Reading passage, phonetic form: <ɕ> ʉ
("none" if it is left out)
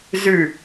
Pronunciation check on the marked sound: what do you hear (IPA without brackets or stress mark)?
z